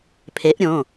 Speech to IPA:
pʰe˨˥ʔɾʲõ˩˧˩

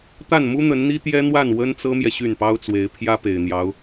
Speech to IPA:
t̪a˥˩nmu˥ n̪ə˧˥nn̪i˥t̪jɛ˥n̪wa˥˩n wə˥nt͡sɤ˥mjɛ˨ ɕy˥˩npɑ˥ʊ̯t͡swe˧˥ɪ̯ pʰjä˥pe˨˩ɪ̯n̪jɑ˧˥ʊ̯

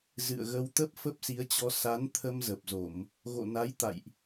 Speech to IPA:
zɨ̰˧˨ə̯ɣə˧wt̪ə˦˥p̚ fə˦˥p̚si˨˦ə̯t͡ɕɔ˧ sa˨˦n t̪ʰə˧mzə˨˩p̚zo˧˩˨m | ɣo̰˧˨na˨˦jt̪a̰˧˨jʔ

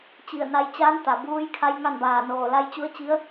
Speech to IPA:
t͡ɕi˧˩ə̯na˧jt͡ɕaː˧˥n t̪a˩buː˧˥jkʰa˧˥j ŋa˥˨nbaː˧˩noː˧˩ la˧jt͡ɕu˧˥ə̯t͡ɕi˧˥ə̯

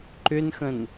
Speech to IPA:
ǃʏnxə̃n

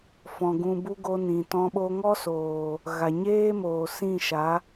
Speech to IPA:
fɔ̃˨ ɡũ˧bu˦ ɡo˧ nĩ˨tɔ̃˧ ɓo˧ŋɔ˦ soː˨ | ɣa˨ɲeː˦moː˨ sĩ˦˨ʃa˨˦

